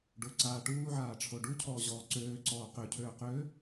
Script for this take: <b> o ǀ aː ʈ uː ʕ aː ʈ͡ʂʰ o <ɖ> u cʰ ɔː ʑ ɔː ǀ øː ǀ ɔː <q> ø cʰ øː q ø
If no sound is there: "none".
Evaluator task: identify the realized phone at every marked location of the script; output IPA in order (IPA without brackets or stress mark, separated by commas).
ɖ, ɖ, q